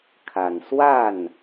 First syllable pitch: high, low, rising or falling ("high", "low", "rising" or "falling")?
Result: low